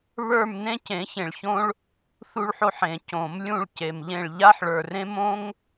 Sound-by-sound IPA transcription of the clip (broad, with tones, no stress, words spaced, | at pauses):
βə˞˦˨m nẽ˦cẽ˨˩˦çẽ˨ɭçõ˦ɭ | θu˦ɭħo˦ħẽ˨˩˦ cõ˨˩˦mlʲũ˦˨ɭ ce˨mʎẽ˦˨ɭ ʎa˦ħɭə˞˨rẽ˦m õ˦ŋ